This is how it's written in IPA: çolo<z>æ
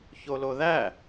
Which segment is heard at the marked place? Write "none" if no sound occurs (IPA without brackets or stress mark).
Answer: ð